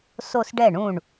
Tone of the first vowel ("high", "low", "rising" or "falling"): falling